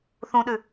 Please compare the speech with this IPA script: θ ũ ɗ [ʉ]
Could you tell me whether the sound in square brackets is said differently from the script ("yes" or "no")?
no